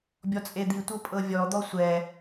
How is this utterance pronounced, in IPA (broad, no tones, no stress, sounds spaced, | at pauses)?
bʲ ɔ t͡sʼ e d̪ i tʷ ɤ pʼ ɤ vʲ ɔ d̪ ɔ sʷ ɛ